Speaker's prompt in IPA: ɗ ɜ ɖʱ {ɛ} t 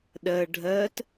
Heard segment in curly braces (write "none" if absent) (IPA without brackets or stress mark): ɜ